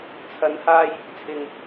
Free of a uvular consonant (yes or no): yes